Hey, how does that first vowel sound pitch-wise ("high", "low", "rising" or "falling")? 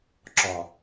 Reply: low